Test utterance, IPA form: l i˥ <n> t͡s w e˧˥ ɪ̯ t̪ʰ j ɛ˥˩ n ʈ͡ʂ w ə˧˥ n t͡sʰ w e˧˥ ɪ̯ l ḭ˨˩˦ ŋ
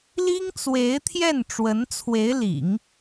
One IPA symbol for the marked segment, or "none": ŋ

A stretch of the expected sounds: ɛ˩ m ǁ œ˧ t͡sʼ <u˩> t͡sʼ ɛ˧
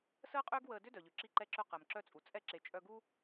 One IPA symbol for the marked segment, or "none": u˩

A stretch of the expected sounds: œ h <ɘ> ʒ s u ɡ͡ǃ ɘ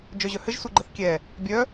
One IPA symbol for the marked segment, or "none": ɘ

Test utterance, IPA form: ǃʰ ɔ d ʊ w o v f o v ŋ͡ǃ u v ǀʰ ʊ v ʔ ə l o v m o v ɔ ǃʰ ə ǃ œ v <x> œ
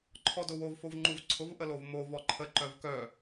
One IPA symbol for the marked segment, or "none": k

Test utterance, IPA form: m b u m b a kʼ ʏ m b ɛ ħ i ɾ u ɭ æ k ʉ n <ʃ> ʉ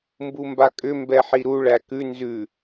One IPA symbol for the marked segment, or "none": z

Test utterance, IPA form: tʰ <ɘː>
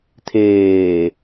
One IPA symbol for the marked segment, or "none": eː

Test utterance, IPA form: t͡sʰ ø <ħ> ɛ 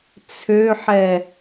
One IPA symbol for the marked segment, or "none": ħ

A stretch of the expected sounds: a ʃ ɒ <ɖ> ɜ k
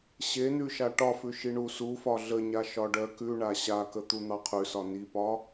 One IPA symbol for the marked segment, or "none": ɖ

